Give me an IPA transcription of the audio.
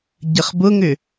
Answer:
ɟ ə χ b ʊ ŋ ʏ

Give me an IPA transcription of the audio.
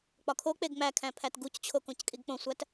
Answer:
k͡p ɒ kʰ o k͡p e ɡ ŋ͡m æ kʰ æ̃ pʰ æ t ɡ u c t͡ɕʰ o k õ c kʼ i ɡ k͡p õ sʷ æ t

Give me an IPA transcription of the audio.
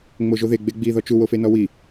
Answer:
ŋ͡m o ʒ o ð e ɡ͡b e ɡ͡b i ð ɔ t͡ʃ u w o f e n ɔ w i

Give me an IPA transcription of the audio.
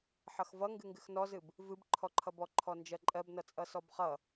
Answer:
ħ ʌ x v ʌ ŋ ɡ ɨ ŋ ɡ ɨ x n ɔ z ɨ b | v ɨ b ǃʰ ɔ ǃʰ ʌ b ɔ ǃʰ ɔ n d͡ʒ ɜ ǃʼ ɜ b n ʌ t͡sʼ ʌ s ɔ b χ ʌ

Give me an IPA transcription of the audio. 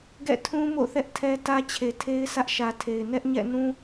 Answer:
ɡ ɛ̰˦˨ tʰ ũ˦ m o̰˦˨ θ ɛ˦ ʔ tʰ ɛ˦ t ä˦ t͡ɕʰ e˨ tʰ e˦ ɪ̯ s ä˦ ʔ ʃ ä˨ tʰ e˨ ɪ̯ n ɛ˦ ʔ ɲ ɛ̰˦˨ n ũ˦

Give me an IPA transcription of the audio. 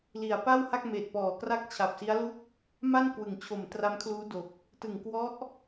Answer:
l i˨˩ a̯ p a˥˩ w h a˥˩ k̚ m eː˨˩ t̚ p ɔː˨˩ k r a˥˩ k̚ t͡ɕʰ a˨˩ p̚ s i˦˥ a̯ l u˥˩ k̚ | m a˥˩ n k w ɯ˩˦ ŋ t͡ɕʰ o˨˩ m t r a˦˥ m kʰ l uː˦˥ d o˨˩ k̚ | t ɯ˨˩ ŋ k w ɔ˦˥ ʔ

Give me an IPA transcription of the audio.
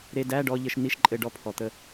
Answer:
ɾ e˧ d æ˧˥˧ ɖ ɔ˧ ʎ ə˧ ʃ n i˧˥˧ ʃ ǃʼ ɘ˧ ɖ ɔ˧ pʰ ɔ˩ t̪ ə˧

